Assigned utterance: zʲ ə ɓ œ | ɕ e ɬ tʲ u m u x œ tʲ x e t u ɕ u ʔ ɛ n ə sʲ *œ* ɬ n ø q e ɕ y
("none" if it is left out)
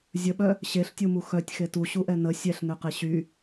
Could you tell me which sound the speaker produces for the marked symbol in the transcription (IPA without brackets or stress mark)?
ɛ